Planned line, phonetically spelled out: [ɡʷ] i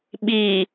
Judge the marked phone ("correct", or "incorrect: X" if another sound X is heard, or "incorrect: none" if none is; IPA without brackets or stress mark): incorrect: ɓ